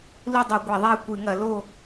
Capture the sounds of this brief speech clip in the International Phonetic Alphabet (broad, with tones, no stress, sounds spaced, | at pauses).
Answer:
l u˥˨ dˤ i˧˩˧ ɡʷ ɛ˧˩˧ ðˤ ɛ˥˨ kʷ ɨ˧˩˧ ŋ ɐ˧˩˧ l o˥˨